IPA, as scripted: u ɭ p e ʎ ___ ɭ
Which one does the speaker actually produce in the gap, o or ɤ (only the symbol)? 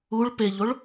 o